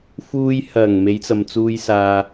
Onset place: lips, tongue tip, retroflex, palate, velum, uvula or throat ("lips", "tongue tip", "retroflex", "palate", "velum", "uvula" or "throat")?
lips